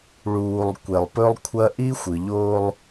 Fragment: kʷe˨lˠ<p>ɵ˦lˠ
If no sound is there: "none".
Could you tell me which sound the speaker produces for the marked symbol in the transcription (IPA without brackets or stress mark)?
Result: p